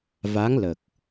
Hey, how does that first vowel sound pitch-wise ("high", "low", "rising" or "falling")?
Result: rising